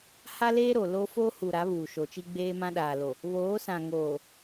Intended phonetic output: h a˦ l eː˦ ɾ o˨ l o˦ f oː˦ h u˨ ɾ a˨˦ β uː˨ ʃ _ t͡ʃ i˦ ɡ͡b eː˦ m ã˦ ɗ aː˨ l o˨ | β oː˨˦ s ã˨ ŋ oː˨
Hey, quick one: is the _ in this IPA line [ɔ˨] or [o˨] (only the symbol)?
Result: o˨